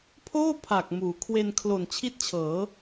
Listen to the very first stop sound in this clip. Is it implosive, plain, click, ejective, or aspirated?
aspirated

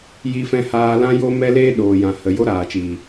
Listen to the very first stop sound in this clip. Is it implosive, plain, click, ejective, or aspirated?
implosive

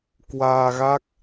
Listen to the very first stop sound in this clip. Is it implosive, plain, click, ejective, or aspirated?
plain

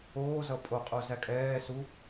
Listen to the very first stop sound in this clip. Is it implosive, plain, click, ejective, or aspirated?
ejective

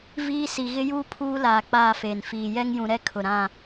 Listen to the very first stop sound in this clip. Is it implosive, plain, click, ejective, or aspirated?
aspirated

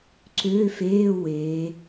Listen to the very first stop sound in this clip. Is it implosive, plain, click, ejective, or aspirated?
click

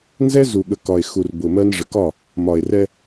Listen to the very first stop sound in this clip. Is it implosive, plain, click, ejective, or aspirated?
implosive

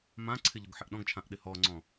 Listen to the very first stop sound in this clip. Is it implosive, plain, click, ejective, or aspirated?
click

